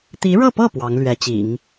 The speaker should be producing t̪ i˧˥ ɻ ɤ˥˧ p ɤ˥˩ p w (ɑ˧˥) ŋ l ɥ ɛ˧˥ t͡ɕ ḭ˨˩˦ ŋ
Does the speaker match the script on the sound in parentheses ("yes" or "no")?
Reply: yes